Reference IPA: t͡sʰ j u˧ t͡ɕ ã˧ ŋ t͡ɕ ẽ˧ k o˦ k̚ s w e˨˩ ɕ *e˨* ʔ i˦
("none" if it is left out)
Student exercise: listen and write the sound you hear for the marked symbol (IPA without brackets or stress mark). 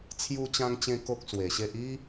e˦